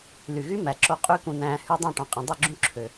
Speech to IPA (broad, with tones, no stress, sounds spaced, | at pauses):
l y˨ ɣ y˦ m æ˨ ǁ o˧ qʼ y˦ k ũ˧ n æ̃ː˧ h y˧ dˤ õ˦˨ ʈ ɑ̃˨ qʼ ĩ˨ dˤ y˦˨ ɡ͡ǁ ũ˧ ǁʰ ø˨